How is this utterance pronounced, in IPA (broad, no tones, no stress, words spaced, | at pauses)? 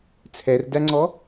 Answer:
t͡sʰɛrdæŋ͡ǀɔ